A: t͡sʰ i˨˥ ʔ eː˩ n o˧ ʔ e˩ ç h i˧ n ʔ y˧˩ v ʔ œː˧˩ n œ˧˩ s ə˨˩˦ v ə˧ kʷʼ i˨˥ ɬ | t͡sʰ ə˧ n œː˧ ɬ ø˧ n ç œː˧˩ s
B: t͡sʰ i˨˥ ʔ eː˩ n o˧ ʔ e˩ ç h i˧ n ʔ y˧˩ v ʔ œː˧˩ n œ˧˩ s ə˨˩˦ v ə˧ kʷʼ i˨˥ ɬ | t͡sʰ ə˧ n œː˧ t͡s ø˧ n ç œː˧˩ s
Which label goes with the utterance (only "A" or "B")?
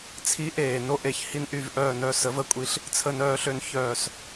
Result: A